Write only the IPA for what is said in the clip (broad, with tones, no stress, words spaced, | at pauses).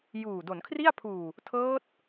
juː˨˩ do˩˦nkʰri˥˩a̯pʰuː˨˩ | tʰɤː˦˥t̚